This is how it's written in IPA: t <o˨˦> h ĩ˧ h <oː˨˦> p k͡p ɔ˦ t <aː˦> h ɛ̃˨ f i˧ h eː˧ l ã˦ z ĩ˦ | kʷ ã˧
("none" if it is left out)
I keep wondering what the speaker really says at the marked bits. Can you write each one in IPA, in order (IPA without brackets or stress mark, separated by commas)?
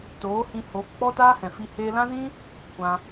oː˨˦, oː˨˦, aː˦